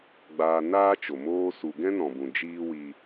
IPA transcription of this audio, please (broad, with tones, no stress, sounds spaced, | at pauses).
ɡ͡b aː˧ n aː˦ t͡ʃ o˨ m oː˧ s u˨ ɡ ɛ̃˦ n ɔ̃˨ b ũ˨ d͡ʒ iː˦ w i˧